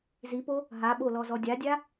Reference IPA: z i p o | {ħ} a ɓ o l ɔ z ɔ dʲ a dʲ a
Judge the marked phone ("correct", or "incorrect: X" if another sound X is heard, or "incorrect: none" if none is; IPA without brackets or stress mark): incorrect: ɦ